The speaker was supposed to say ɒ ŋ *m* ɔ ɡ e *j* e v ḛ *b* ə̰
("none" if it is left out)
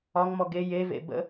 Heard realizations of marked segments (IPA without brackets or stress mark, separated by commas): m, j, b